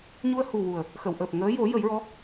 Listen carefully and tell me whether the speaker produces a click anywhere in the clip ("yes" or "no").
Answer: no